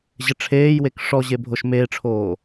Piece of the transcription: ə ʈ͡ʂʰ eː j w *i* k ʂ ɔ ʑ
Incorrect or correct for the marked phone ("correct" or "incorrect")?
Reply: incorrect